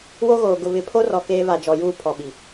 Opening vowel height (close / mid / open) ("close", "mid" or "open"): mid